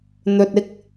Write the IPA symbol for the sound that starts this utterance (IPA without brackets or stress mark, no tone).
n̪